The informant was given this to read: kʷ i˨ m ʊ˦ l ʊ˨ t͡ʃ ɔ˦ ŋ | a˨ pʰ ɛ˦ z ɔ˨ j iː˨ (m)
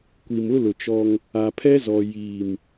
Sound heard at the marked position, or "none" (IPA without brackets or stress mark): m